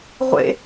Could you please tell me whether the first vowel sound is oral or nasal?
oral